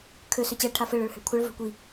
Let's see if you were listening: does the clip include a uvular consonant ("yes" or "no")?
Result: no